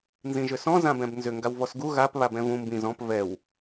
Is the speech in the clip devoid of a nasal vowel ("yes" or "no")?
no